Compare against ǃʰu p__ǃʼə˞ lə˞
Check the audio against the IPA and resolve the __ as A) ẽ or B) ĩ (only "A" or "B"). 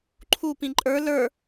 B